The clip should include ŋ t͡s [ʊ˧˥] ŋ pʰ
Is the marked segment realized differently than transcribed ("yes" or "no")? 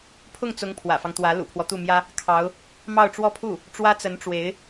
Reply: no